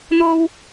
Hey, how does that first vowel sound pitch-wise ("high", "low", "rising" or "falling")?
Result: high